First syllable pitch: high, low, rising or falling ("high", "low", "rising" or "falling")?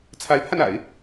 rising